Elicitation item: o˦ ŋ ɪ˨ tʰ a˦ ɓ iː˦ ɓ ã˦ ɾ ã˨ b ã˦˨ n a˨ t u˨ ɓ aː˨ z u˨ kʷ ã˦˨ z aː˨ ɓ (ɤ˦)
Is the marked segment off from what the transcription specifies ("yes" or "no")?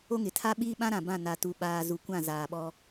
yes